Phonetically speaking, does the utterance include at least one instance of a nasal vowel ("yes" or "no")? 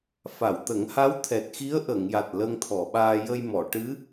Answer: no